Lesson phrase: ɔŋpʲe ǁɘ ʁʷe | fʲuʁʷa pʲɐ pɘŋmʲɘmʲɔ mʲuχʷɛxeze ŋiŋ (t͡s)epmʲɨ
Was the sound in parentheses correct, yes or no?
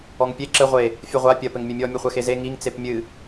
yes